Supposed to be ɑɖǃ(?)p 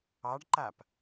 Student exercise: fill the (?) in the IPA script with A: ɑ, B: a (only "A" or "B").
B